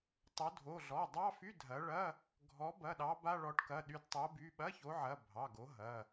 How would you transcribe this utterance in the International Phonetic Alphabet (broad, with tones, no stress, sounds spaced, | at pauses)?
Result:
tˤ o˨˦ dʱ o˩˧˩ ɮ ɔ˩˧˩ dˤ ɑ˧˥˧ f y˧˥˧ dʱ ɐ˨˦ ɭ ɐ˧˥˧ | ɡʱ ɔ˨˦ b ɐ˩˧˩ ɗ ɑ˨˦ b a˧˥˧ ɭ ɔ˨˦ ʈ k ɐ˩˧˩ ɗ y˨˦ d tˤ o˨˦ b y˩˧˩ ɓ ɐ˧˥˧ ç o˨˦ ʕ ɐ˩˧˩ bʱ ɑ˩˧˩ ɡ o˨˦ ɦ ɐ˩˧˩